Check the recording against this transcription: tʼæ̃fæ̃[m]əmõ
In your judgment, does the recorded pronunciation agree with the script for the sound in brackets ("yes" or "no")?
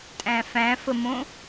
no